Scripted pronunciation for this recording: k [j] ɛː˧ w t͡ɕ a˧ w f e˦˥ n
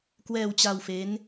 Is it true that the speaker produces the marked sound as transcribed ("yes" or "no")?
no